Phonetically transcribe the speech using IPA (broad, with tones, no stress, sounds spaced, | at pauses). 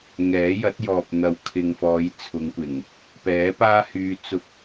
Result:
ŋ ɛː˨˥ j ɐ˨˥ t̚ j ɔː˨ p̚ n̪ ɐ˨ w kʰ ɪ˨ ŋ f ɔː˨˧ j t͡sʰ ʊ˨˧ ŋ kʷ ɪ˨˩ ŋ | p ɛː˨˥ p aː˥ h yː˧ t͡s ʊ˧ k̚